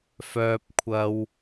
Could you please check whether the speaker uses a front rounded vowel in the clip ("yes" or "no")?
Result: yes